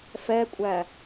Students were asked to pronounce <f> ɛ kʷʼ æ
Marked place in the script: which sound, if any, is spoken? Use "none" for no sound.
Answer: f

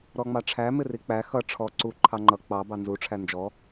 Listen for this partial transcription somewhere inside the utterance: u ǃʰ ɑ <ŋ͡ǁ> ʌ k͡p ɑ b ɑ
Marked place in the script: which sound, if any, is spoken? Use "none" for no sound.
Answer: ŋ͡ǃ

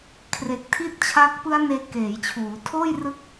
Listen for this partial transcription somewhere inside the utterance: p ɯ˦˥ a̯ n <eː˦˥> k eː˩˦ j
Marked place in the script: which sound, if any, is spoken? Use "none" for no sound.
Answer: eː˧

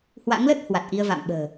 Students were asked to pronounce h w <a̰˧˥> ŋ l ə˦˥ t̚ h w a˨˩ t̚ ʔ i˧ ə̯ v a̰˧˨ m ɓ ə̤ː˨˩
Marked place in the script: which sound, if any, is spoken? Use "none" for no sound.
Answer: a̰˧˥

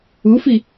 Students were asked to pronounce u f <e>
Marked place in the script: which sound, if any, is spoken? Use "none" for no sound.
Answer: i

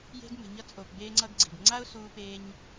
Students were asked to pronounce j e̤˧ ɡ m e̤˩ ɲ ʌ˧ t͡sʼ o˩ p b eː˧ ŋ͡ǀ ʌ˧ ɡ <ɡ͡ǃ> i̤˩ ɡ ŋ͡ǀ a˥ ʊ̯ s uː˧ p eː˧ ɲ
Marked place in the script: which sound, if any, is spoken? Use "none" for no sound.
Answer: ɡ͡ǀ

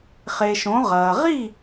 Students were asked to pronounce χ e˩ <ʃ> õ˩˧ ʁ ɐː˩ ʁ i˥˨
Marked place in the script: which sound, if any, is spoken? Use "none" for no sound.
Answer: ʃ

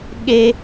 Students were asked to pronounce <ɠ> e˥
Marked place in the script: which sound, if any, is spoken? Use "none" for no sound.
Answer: ɠ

